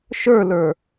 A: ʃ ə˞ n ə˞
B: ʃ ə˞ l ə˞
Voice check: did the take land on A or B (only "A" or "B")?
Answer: B